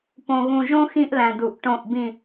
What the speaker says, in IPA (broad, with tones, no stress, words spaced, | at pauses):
põ˨ɣũ˨ʒõ˦ xĩ˦ʔlæ̃˨du˨ʔ ʈõ˦˨ʔbĩ˦˨